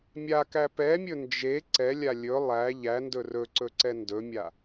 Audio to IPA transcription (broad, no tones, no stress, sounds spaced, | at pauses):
mʲ a k æ p ɛ mʲ ɵ n d͡ʒ e ǀ ɛ lʲ a lʲ ɵ lˠ æ ʎ æ n d ɵ r ɵ ǀ ɵ ǀ ɛ n d ɵ mʲ a